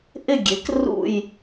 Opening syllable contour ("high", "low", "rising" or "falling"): falling